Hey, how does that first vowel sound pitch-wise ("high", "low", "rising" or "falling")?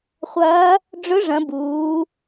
rising